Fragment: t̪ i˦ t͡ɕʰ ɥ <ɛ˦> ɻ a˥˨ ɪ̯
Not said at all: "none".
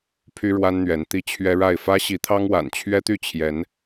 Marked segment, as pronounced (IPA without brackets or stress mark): ɛ˦